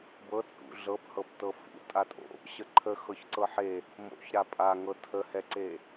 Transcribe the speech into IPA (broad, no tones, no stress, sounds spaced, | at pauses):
b ɤ t͡sʼ ṵ ɮ ɤ p h ɤ p t ɤ f ṵ tʼ a tʼ o̰ | ɕ ə ǃʰ ə x ɤ ç ǀ ɤ ħ e | m o̰ ç ɾ a pʼ a ŋ ɤ tʰ ə h ɛ ǀ e